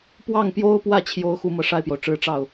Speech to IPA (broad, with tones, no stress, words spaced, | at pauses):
pwɑ˥˩ŋpjo˥ʊ̯pwä˥˩ t͡ɕʰjo˥ʊ̯xu˥mɤ˨ ʂa˥˩ɪ̯pjo˩ʊ̯ʈ͡ʂɻ̩˧˥ ʈ͡ʂɑ˥˩ʊ̯